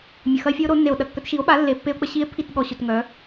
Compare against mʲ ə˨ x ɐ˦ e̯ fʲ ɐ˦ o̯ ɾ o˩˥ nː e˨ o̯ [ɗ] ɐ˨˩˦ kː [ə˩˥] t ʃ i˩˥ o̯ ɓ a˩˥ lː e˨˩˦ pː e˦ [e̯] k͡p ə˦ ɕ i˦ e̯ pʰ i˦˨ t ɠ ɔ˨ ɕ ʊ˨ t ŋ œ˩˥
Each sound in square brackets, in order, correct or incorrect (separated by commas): correct, incorrect, incorrect